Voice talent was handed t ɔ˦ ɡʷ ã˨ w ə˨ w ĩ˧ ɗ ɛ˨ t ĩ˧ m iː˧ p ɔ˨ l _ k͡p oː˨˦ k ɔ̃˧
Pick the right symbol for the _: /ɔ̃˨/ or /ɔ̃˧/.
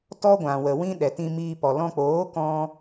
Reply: ɔ̃˧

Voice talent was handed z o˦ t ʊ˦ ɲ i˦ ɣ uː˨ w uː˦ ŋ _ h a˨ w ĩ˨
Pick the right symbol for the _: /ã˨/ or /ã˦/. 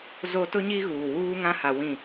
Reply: ã˦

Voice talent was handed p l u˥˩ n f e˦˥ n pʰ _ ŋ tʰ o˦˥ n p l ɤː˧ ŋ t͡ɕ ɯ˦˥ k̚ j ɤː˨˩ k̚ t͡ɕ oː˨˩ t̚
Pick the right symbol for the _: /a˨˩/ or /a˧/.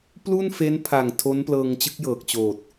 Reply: a˨˩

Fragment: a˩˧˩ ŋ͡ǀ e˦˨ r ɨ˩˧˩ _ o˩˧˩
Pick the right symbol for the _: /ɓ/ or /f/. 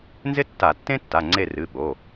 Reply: ɓ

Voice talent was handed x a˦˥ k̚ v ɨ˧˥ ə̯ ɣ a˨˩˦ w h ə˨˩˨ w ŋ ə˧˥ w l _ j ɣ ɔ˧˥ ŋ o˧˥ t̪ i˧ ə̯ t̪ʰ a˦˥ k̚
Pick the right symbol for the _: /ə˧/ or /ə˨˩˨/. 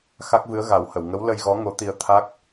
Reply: ə˧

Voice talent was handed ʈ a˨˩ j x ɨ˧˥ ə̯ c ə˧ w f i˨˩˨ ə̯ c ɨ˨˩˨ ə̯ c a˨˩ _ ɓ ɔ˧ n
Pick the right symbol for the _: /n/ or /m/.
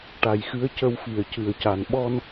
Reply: n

